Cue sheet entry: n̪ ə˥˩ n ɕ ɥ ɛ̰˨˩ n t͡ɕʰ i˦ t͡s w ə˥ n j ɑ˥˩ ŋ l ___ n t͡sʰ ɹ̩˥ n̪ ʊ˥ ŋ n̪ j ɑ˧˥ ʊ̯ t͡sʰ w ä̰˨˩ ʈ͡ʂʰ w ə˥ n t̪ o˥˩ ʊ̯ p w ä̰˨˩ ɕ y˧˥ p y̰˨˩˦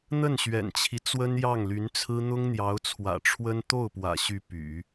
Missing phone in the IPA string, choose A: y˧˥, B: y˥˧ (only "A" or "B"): A